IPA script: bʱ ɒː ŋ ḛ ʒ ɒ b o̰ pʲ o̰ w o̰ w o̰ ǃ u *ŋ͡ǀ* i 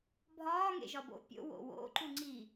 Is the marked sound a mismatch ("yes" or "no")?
no